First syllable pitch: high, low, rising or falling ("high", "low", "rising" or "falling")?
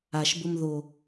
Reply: low